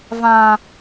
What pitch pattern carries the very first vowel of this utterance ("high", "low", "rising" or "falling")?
high